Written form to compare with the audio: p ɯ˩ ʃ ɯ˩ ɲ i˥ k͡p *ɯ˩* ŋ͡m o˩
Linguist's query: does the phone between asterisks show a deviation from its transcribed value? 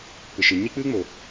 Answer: yes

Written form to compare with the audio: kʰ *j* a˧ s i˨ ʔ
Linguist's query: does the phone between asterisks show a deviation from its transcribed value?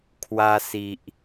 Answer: yes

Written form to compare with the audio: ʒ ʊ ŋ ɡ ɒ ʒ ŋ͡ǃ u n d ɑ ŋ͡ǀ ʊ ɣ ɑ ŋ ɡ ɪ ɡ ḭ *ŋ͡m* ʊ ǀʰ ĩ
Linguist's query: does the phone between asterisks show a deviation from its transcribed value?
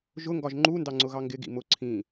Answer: yes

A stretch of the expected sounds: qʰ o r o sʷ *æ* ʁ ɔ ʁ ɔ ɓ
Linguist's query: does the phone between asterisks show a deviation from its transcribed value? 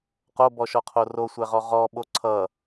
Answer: no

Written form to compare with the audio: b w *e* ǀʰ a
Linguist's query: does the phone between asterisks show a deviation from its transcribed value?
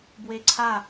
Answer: no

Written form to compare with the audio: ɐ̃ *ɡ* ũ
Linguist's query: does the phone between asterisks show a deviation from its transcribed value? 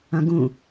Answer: no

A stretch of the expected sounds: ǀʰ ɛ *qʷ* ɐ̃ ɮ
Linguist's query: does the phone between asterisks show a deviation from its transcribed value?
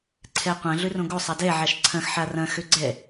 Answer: no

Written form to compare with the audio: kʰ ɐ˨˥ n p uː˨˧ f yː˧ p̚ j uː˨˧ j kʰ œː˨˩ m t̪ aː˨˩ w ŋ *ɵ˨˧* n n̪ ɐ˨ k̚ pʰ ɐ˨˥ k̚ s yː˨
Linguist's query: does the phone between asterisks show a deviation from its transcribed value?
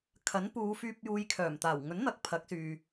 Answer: yes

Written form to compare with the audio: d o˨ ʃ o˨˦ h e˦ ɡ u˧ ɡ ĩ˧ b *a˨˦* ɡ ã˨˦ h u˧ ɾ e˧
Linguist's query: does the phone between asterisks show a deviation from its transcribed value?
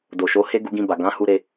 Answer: yes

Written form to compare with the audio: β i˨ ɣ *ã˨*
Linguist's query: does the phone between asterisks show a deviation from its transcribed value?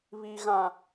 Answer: no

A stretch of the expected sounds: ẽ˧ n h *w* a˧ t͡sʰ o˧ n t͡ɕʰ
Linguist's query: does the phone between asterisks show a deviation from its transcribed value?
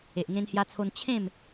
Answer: yes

